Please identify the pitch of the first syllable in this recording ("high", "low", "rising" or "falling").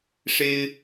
high